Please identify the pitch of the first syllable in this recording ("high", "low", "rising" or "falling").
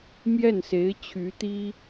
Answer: falling